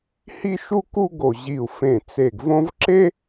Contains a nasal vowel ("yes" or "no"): yes